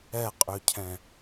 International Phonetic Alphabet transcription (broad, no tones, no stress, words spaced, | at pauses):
ɛqʼʏcʰɛ̃